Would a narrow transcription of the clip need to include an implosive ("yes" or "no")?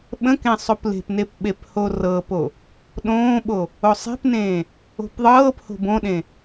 yes